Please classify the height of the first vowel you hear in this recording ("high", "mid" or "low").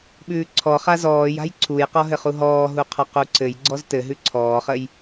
high